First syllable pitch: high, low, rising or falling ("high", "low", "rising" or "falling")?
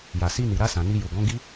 low